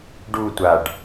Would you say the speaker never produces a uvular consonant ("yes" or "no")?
yes